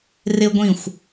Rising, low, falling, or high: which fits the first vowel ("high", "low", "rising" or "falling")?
high